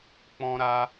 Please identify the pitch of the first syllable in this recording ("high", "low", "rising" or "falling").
high